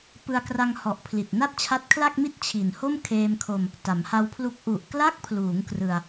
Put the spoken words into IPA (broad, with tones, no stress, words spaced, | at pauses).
pɯ˧a̯kra˧ŋhɔ˨˩ʔpʰli˨˩t̚ na˥˩t̚t͡ɕʰa˦˥t̚kʰla˥˩k̚ mi˦˥t̚ t͡ɕʰi˨˩nho˥˩m kʰeː˧mkʰo˧m | ta˩˦mha˧wpʰlu˦˥k̚ ʔu˨˩ʔkla˦˥k̚pʰluː˩˦ŋ krɯ˧a̯